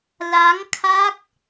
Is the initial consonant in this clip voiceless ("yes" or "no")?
no